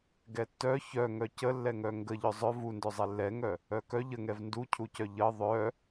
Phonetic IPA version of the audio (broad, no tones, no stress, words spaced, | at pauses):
ɡɛtːœ çœŋœ cəlːɛŋœ ŋɡə ʎœzˤœ vundœzˤɛ lːɛŋœ | œkœ ʎəŋɛv nducʰucœ ʎə ðˤœ